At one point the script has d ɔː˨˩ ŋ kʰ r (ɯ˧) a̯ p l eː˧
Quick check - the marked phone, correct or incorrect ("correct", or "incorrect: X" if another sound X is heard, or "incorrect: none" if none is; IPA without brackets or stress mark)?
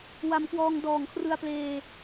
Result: correct